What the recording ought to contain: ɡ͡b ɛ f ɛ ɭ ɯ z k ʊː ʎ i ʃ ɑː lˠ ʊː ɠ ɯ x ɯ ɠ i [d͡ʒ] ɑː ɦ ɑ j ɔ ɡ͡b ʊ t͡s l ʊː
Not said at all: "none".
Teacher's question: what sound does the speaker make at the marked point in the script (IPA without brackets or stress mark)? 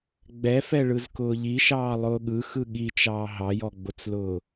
t͡ʃ